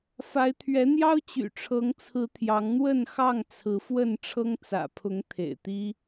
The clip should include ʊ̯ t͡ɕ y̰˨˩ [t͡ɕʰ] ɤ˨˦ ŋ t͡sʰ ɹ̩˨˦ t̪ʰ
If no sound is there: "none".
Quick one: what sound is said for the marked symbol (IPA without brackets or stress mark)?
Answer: ʈ͡ʂʰ